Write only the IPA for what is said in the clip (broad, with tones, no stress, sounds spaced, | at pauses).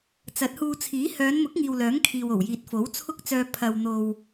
t͡s ɐ˨˥ t̚ h uː˧ t͡sʰ iː˨˥ h œː˨˧ n m ʊ˨˥ k̚ ŋ iː˨ w l œː˨˥ ŋ kʰ iː˨ w o˨˩ w j iː˨ t̚ f o˨˥ w t͡sʰ ʊ˥ k̚ t͡s œː˧ pʰ ɐ˨ w n̪ o˨ w